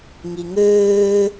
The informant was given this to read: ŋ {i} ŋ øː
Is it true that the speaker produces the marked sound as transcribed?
yes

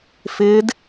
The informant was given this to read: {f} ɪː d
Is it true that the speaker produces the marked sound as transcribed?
yes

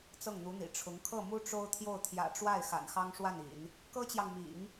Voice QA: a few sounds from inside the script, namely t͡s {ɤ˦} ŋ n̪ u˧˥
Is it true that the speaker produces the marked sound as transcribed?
no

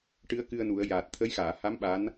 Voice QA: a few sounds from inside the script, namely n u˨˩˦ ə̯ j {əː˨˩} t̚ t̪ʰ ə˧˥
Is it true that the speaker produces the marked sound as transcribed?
no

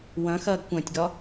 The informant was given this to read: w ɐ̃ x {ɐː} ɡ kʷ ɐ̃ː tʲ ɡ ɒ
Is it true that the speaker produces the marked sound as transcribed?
yes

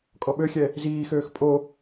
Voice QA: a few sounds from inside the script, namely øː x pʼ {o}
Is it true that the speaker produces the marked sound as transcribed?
yes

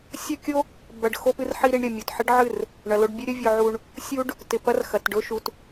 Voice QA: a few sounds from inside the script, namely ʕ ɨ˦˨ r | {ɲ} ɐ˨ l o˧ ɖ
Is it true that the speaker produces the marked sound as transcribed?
no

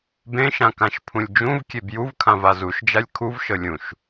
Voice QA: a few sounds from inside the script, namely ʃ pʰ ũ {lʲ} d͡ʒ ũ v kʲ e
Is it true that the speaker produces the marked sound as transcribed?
yes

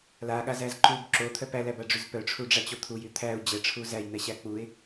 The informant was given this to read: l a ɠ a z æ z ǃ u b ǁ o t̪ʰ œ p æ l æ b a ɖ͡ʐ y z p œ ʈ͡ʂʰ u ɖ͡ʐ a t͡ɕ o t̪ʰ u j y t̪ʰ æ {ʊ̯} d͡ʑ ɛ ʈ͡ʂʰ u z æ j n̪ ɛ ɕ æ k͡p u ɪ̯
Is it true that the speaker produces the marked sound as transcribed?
yes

